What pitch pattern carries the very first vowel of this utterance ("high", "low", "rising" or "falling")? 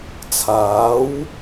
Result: rising